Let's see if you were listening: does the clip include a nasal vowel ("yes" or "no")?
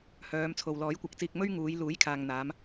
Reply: no